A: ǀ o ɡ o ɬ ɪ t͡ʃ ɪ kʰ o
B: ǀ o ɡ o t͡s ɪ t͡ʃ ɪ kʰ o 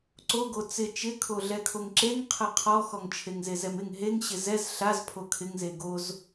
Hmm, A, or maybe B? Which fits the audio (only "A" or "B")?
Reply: B